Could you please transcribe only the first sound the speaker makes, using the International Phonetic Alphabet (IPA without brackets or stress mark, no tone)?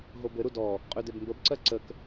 ɦ